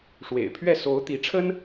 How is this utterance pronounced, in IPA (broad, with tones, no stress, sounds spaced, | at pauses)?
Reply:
ʂ w ḛ˨˩ ɪ̯ pʰ ɥ ɛ˥˩ s o˧˥ ʊ̯ t̪ i˧˥ ʈ͡ʂʰ ə˥ n